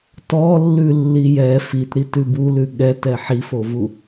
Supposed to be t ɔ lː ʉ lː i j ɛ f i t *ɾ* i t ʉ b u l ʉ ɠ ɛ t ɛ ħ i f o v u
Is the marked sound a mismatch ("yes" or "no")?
no